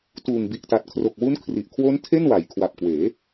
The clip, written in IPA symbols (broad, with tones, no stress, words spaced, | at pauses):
tuː˨˩ŋbi˨˩ʔta˨˩t̚ kʰro˨˩k̚wu˦˥nkʰri˨˩ʔkʰwo˦˥n tʰe˥˩nwa˩˦j kʰwa˨˩p̚kweː˩˦